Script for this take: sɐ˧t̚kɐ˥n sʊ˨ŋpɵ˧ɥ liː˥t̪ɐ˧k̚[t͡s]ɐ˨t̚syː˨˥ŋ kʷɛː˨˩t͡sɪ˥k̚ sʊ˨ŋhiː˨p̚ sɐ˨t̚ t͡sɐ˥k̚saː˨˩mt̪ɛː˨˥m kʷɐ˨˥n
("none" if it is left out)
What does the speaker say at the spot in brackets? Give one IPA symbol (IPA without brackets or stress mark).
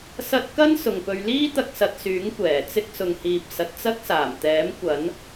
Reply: s